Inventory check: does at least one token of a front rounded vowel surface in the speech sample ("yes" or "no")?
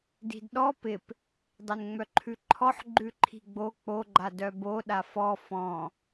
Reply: yes